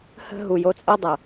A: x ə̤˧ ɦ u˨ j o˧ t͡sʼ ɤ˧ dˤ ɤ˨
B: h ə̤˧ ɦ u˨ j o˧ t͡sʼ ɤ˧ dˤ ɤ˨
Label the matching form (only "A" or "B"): B